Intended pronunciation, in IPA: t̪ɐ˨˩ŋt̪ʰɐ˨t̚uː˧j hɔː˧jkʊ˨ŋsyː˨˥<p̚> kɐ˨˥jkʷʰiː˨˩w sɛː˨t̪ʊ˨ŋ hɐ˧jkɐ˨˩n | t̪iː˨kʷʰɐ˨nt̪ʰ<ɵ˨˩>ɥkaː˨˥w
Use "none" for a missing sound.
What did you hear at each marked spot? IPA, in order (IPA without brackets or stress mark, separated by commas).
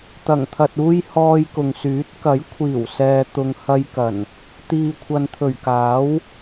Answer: t̚, ɵ˨˩